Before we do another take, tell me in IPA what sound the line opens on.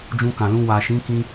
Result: d͡ʒ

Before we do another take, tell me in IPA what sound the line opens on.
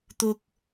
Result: t̪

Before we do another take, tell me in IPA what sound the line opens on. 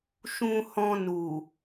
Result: ʃ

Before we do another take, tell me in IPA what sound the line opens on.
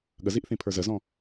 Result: ɠ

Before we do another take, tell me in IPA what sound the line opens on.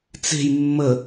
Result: t͡s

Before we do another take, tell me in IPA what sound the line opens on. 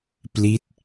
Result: p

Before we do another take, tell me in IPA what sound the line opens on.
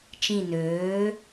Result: t͡ʃ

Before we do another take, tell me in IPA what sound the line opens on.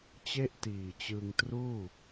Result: t͡ɕ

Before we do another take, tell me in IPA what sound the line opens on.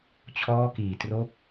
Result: t͡ɕʰ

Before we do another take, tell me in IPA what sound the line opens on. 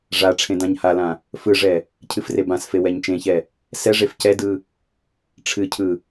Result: ʐ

